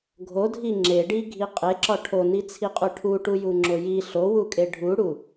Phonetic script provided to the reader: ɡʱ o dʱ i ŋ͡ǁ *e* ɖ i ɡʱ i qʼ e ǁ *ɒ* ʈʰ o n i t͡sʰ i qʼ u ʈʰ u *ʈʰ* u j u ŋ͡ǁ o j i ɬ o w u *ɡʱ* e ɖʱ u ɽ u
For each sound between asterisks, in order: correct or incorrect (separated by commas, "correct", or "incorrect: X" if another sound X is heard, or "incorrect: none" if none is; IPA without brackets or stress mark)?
correct, correct, incorrect: ʈ, incorrect: kʼ